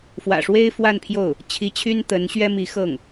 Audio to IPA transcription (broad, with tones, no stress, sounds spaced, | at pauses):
f w ä̰˨˩ ʂ w e˥ ɪ̯ f w a˥˧ n pʰ j o˥˩ ʊ̯ | t͡ɕʰ i˧˥ t͡ɕʰ y˥ n t̪ ə˧˥ n ɕ ɥ ɛ˥ m i˧˥ x ɤ˥˩ ŋ